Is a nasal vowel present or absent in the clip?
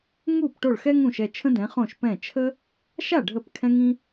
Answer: present